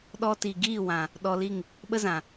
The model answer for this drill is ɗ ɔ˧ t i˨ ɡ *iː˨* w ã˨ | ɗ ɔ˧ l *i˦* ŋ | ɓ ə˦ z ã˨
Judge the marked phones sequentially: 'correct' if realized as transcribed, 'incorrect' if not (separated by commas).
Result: incorrect, incorrect